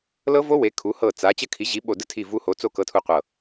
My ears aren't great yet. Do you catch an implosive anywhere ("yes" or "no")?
yes